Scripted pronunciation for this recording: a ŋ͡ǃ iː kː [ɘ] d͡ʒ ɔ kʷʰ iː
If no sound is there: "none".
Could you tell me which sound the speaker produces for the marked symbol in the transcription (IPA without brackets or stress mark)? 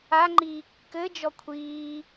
ɘ